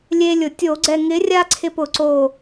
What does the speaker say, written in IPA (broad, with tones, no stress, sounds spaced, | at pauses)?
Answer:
lʲ e˦ lʲ ʊ˧˩˧ tʲ o˧˩˧ ɡ͡ǀ ɛ˧˩ ŋ ɪ˨˥ rʲ a˦ ǀʰ ɪ˧˩ p ʊ˧˩˧ ǀ o˧˩